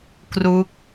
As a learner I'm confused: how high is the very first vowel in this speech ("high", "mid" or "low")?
high